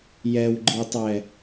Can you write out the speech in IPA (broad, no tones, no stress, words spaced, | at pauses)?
jɛwɡ͡ǃitˤɛ